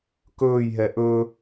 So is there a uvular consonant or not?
no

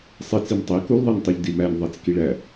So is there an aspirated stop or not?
no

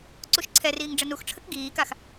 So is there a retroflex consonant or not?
yes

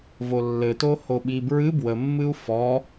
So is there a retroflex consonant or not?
no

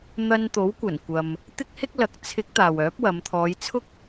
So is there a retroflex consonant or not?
no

